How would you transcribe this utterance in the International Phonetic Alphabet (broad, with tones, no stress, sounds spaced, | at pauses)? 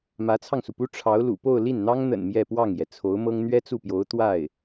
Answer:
m ä˧˥ t͡sʰ ɑ˧ ŋ s u˩ p u˥ ʈ͡ʂʰ ɑ˧˥ ʊ̯ l ṵ˨˩ p o˥˧ ʊ̯ l i˥˩ n n̪ ɑ˥ ŋ n̪ ə̰˨˩ n m j ɛ˥˧ p w ɑ˥˩ ŋ j ɛ˩ t͡sʰ o˧˥ ʊ̯ m ɤ˥ ŋ n̪ ɥ ɛ˥ t͡s u˥˩ p j o˧˥ ʊ̯ t̪ w a˥˩ ɪ̯